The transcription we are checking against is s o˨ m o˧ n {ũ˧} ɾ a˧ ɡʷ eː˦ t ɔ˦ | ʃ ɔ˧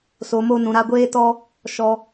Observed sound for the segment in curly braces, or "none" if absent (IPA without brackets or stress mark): ũ˨